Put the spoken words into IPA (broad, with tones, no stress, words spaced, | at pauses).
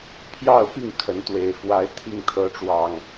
pʰjɑ˥˨ʊ̯pi˥˨ŋ kʰə˨˦nt̪we˨˩ɪ̯ fwa˨˦ɪ̯ t̪ʰi˥˨ŋ t̪ʰɤ˨˦ʈ͡ʂwɑ˨˩ŋ